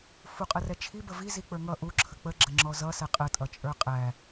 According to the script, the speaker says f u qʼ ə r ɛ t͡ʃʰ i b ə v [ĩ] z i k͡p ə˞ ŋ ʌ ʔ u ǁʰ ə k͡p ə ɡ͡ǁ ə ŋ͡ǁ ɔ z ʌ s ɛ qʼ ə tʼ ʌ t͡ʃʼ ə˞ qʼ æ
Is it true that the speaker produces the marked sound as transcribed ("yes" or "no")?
no